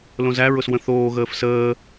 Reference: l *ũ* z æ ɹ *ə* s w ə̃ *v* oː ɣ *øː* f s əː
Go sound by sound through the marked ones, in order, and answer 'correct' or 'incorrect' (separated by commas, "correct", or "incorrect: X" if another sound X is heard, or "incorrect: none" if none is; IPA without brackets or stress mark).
incorrect: õ, incorrect: ʊ, incorrect: θ, incorrect: əː